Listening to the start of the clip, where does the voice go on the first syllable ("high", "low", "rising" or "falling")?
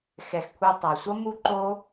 low